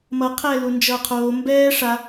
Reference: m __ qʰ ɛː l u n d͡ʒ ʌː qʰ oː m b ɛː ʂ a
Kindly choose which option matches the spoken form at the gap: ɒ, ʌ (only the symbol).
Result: ʌ